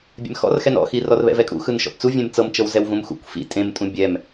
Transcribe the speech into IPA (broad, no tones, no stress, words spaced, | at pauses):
bʲɛ̰mxɔ̰rxɛn ɔ̰xi rɔrβɛ̰vɛkʼṵ xɯnʃɔ̰pt͡suvʲẽm t͡sɤmt͡ʃɤwzɛw vũmxṵkʷ fḭ tʼẽmtʼũ bʲɛm